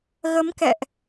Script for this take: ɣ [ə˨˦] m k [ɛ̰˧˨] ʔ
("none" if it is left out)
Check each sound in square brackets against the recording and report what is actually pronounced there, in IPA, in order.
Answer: ə˨˦, ɛ̰˧˨

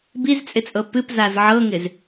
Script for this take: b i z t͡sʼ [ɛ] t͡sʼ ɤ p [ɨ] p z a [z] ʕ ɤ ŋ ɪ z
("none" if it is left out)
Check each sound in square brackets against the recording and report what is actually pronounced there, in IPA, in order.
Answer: ɪ, ɨ, z

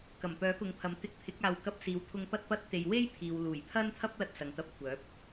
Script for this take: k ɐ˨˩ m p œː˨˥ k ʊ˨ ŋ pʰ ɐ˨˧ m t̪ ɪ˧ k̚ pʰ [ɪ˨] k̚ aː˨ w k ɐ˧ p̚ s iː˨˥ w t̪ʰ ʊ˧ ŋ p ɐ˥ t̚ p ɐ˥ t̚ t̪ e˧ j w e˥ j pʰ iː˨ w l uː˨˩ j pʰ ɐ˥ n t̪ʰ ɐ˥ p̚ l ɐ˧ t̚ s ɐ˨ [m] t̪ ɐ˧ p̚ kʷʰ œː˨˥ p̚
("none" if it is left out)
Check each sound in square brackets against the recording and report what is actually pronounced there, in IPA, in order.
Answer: ɪ˨˥, ŋ

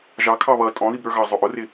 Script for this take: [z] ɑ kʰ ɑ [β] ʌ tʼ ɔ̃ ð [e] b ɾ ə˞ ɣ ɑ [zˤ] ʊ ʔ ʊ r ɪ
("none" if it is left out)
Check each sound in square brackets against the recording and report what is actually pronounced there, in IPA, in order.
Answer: ʒ, β, i, zˤ

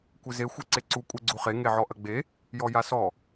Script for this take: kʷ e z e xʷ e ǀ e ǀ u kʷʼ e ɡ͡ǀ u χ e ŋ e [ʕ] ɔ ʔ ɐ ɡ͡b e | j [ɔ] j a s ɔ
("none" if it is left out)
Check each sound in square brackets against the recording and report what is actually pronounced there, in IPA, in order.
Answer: ʕ, ɔ

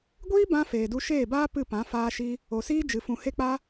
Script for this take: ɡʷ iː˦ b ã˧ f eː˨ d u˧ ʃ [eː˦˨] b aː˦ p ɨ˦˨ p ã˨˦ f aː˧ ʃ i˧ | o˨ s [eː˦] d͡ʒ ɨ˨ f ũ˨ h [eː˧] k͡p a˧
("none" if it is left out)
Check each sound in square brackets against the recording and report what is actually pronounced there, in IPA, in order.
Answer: eː˦˨, iː˦, e˧

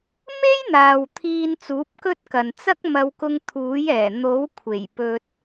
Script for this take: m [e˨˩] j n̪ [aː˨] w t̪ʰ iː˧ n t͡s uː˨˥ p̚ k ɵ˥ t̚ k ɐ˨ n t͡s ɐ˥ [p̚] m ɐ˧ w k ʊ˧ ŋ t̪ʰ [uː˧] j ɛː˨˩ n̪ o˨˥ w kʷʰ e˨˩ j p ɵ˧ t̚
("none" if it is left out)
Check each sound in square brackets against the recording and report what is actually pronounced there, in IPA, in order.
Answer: e˥, aː˨, k̚, uː˨˥

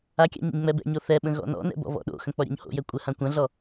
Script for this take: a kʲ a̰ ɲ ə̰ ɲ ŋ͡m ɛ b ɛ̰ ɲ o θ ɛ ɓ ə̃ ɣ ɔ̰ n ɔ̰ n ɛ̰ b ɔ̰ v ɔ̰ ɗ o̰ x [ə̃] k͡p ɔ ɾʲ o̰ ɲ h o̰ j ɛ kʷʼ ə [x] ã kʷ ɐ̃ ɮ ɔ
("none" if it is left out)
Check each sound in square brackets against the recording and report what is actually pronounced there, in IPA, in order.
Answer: ə̃, h

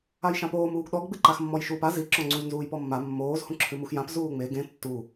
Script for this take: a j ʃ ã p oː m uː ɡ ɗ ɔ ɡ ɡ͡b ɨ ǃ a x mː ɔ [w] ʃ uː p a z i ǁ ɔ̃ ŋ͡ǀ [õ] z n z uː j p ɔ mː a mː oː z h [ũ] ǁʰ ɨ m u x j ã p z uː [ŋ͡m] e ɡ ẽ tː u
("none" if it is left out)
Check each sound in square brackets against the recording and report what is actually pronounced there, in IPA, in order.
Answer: j, ũ, ũ, ŋ͡m

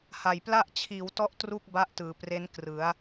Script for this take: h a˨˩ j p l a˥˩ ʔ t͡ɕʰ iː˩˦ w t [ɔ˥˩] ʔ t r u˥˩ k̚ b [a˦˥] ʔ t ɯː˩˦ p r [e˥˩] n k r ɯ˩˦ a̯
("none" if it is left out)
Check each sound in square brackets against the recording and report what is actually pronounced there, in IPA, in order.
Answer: ɔ˦˥, a˦˥, e˦˥

